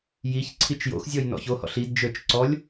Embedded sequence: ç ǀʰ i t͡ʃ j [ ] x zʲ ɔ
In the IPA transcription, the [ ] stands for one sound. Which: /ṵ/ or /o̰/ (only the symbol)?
o̰